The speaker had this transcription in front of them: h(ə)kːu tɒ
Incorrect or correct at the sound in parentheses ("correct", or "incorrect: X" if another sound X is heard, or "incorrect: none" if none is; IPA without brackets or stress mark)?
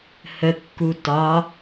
correct